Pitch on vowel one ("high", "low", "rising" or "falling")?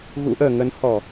rising